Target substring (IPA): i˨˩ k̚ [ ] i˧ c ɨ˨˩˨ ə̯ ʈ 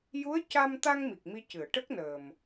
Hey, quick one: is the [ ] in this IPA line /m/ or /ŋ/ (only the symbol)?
m